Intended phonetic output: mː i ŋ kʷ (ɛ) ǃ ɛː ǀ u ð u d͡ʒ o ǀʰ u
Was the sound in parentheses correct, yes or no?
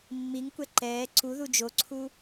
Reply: yes